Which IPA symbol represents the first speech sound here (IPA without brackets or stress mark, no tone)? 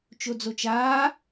t͡ʃ